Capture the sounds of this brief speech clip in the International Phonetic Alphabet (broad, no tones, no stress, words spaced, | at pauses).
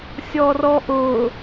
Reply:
sʲɔrɔʔʊ